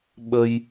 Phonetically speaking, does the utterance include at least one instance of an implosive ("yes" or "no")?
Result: yes